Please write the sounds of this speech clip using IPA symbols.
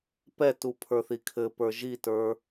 p ɛ t u pʰ ə˞ θ i kʰ ɘ p ə˞ ʒ i t ə˞

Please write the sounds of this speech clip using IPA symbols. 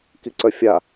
k i ǀ œ fʲ a

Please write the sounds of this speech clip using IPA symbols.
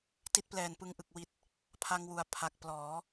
t i˦˥ t̚ p l ɛː˨˩ n p ɯ˧ ŋ ʔ ɯ˨˩ k̚ w i˨˩ t̚ | pʰ a˧ ŋ w u˩˦ a̯ pʰ a˨˩ k̚ p l ɔː˩˦

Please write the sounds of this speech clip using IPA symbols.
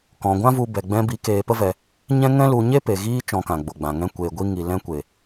k ɔ̃˧ ɡʷ ã˦ v u˧ b ɛ˨ ɡ͡b ɛ̃˧ b i˨˦ k eː˧ p ə˦ v ɛ˧ | ɲ ɛ̃˦ ŋ ɛ̃˦ l u˧ ɲ e˦ p e˨ ɣ iː˦ t͡ʃ ɔ̃˧ k ã˨ ɡ͡b o˨ ɡ͡b ã˨ ŋ ɛ̃˧ kʷ eː˨ ɡʷ i˧ ŋ i˨ l ɛ̃˧ kʷ e˨

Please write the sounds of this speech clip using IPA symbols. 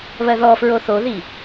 β ɜ ð ɔ f ɹ o θ o ð i

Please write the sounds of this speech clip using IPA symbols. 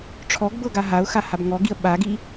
ʈ͡ʂʰ ɔ ɡ b ɤ ɡ a ɦ a ʊ̯ x a h a b ŋ ɔ ɡ i ə̯ ɓ a ɡ i

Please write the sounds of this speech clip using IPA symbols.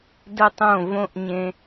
d ə˦ tˤ õ˦˨ v õ˦ ʔ ɲ ẽ˧

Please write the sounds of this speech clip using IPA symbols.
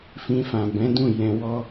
f ĩ˧ f ã˨ b ɛ̃˨˦ d ũ˦˨ j ɛ̃˧ w ɔ˦

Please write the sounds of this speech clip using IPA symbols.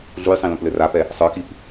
ɮ u j sˤ ĩ l ũ p l ɘ r a p ɛ | sˤ ə˞ k i p

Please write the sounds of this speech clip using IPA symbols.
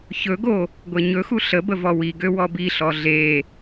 ç ɵ ɡ o | ɡʷ e ɲ ɵ x u ɬ ə b ə v ɔ w i ɡ ø w ɔ b i ɬ ɔ ɮ e

